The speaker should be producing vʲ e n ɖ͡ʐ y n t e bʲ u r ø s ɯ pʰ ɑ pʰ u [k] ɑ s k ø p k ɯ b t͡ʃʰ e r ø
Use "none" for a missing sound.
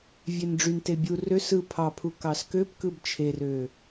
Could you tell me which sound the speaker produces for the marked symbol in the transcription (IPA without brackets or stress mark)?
k